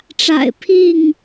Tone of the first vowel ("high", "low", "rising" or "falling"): low